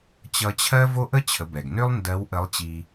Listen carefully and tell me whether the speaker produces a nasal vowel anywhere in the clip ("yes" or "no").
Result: no